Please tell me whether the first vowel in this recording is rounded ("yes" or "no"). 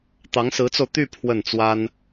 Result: no